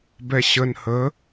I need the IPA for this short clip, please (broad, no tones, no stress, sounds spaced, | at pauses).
b ɛ ɕ ə n h ə